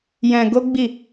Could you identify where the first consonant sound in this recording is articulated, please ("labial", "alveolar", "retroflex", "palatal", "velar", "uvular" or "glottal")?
palatal